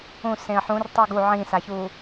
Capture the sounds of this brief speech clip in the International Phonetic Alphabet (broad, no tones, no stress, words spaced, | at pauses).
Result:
ũ sẽə̯ħũr tˤuɡu ʕĩsaçu